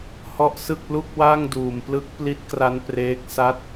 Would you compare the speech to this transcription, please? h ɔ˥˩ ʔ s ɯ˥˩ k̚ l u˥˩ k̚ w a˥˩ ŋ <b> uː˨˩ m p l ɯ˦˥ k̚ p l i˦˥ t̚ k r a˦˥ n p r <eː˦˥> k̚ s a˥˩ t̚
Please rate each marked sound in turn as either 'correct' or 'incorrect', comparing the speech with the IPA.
incorrect: d, correct

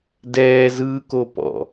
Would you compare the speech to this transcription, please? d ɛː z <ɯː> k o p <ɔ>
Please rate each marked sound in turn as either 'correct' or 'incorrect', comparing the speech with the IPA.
correct, incorrect: ɔ̰

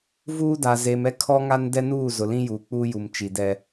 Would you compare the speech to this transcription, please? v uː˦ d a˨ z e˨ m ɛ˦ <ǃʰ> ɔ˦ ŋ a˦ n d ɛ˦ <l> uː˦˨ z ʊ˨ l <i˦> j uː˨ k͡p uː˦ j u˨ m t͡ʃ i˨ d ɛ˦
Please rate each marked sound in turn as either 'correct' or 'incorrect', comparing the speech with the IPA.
incorrect: kʰ, incorrect: n, incorrect: ĩ˦

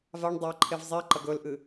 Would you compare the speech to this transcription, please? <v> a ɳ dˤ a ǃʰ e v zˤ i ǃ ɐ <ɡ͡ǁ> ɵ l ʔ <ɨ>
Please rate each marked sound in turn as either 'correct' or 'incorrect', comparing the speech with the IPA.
correct, incorrect: ɡ, correct

